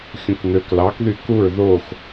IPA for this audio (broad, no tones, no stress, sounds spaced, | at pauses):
xʲ ũ k n̪ ø k l ɑ k ð y k u ɹ ð o x